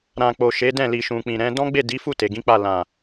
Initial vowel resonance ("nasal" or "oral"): nasal